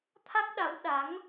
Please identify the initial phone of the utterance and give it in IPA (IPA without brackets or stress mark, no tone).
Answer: t̪ʰ